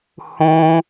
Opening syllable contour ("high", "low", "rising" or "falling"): high